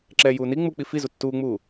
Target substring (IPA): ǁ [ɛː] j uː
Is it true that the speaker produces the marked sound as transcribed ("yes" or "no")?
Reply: yes